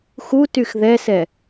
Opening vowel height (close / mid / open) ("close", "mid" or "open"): close